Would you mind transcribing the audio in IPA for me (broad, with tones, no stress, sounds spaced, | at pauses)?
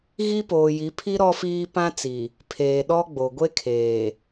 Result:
ɣ i˦ p oː˨ j i˨˦ pʰ i˦ ɾ ɔ˦ f iː˦ p ã˦ t͡s i˨ | pʰ eː˨ ɗ ɔ˦ ɡ͡b o˨ ɡʷ e˦ kʰ eː˨